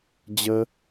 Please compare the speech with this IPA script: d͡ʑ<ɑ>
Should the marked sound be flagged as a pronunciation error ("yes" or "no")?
yes